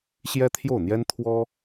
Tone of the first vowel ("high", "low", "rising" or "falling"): high